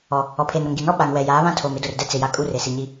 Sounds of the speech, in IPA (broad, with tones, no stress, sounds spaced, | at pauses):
ɔ˨ | ɔ˨ pʰ eː˨ n ɾ o˨ ŋ ɡ i˨ n ɔ˦ ɓ a˨ ŋ w ɛ˨ j aː˨˦ β ã˦ tʰ oː˨ m ɪ˦ d ʊ˨ r d ɛ˦ t͡s ɪ˨ j a˨ kʼ u˦ r e˨ s i˨ ɲ i˦